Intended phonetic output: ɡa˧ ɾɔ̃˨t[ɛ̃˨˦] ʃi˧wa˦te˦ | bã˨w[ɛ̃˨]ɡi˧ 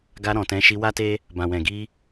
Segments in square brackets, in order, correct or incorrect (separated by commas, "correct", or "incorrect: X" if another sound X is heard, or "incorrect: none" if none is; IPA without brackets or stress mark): correct, correct